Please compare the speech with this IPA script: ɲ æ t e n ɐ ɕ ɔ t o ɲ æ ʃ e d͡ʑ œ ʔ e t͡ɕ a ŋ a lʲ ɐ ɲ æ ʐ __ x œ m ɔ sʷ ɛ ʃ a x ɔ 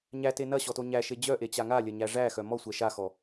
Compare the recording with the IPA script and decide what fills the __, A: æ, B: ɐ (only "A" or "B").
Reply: A